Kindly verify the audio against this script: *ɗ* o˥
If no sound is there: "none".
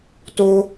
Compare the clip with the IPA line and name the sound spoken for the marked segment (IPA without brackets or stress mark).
t